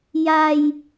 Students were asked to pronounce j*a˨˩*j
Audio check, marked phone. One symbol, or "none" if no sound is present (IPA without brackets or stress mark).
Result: a˧